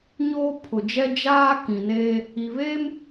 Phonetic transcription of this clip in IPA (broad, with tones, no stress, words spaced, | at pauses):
ɲoː˦ pʰʊ˨d͡ʒɛ˦ d͡ʒaː˦ kĩ˨neː˦ | i˨βeː˦m